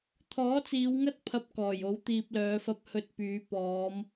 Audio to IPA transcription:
t̪ʰ ɔː˨˥ t͡s iː˨˧ w ŋ ɐ˥ t̚ pʰ ɐ˨ p̚ k ɔː˨˩ j o˨˥ w t̪ iː˨ p̚ l œː˨˧ f ɐ˧ p̚ h ɵ˧ t̚ p yː˨˧ p ɔː˨˧ m

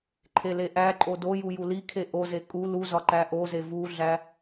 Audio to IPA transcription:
ǃʰ e l e ʔ æ ǃʼ o d o j u j u l i kʰ e ʔ o z e kʼ u l u z ɒ ǃ æ ʔ o z e v u ɮ æ

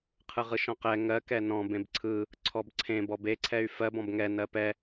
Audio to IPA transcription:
qʰ ɯ ʁ ɯ ʃ ɔ̃ q ɛ ŋ ɜ k ɛ n ɔ̃ b ẽ b ǀʰ ɯ | ǀʰ ɔ b ǀʰ ẽ b ɔ b e ǀʰ ɛ y̯ f ɜ b ɔ̃ b ŋ ɛ n ɜ p ɛ

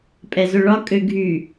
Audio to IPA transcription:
pʼ ɛ z ɵ ɭ ɒ kʼ ø ɡʱ y

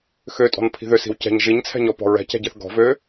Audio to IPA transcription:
x ø tʼ ɔ̤ n pʰ i̤ ð ø s i̤ w c ɛ̤ ɲ ʒ i ɲ t͡sʰ ɛ̤ ɲ ɔ p ɔ̤ ɹ ɛ̤ c ɛ̤ ɟ ɛ θ ɡ ɔ̤ v ø

